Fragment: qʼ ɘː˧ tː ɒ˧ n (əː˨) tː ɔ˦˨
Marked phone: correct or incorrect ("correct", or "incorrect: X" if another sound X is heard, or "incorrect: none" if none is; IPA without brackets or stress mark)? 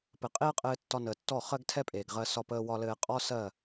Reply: correct